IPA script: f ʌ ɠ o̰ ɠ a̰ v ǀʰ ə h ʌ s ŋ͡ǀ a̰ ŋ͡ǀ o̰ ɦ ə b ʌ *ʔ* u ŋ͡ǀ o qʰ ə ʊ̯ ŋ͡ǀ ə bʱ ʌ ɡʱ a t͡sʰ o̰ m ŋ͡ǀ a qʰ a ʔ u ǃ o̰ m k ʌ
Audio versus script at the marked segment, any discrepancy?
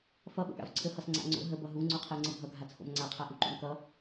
yes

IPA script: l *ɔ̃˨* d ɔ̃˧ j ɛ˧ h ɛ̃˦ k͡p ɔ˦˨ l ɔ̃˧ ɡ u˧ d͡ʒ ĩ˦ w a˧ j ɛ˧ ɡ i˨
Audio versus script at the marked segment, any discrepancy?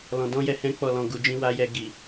no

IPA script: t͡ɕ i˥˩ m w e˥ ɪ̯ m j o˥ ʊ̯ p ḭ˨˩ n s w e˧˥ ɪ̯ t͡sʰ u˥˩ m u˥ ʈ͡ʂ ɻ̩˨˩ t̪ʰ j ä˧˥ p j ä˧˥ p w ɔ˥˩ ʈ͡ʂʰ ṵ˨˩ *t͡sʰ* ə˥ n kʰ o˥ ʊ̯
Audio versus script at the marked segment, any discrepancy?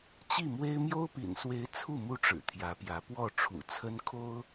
no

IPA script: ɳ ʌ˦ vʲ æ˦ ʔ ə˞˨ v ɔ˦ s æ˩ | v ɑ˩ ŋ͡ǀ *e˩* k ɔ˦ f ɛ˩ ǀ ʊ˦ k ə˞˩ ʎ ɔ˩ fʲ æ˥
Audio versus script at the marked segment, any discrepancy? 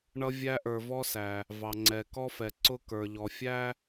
yes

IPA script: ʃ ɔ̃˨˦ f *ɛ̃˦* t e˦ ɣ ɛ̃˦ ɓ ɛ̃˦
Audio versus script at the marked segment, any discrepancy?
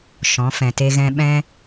yes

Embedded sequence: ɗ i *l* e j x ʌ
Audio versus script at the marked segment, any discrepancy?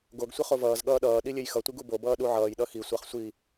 yes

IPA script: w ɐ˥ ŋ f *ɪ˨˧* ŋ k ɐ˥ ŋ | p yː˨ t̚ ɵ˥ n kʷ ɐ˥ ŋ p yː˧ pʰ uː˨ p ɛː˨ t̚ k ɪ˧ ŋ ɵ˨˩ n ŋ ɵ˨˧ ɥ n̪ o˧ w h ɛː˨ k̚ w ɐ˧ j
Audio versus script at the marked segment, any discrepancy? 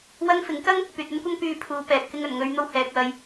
yes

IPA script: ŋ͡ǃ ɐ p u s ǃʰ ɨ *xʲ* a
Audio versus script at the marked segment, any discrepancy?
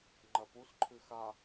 yes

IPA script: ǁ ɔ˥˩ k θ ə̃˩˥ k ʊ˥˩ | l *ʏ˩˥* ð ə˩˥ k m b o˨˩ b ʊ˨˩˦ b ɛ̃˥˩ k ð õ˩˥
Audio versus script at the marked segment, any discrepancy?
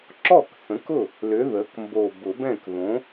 no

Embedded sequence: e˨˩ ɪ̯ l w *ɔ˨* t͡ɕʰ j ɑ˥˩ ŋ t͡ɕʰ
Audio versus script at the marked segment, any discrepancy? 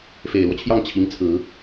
yes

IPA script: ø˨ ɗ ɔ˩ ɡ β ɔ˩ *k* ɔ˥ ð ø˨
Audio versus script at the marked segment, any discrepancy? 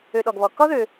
no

